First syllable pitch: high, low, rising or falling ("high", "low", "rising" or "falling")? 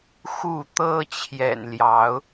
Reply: falling